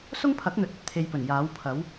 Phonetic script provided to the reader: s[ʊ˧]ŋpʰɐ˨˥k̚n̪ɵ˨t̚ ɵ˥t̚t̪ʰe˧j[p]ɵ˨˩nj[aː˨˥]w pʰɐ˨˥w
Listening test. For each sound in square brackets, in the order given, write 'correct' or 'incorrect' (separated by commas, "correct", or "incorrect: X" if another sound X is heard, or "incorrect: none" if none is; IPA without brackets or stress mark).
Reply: incorrect: ʊ˥, correct, correct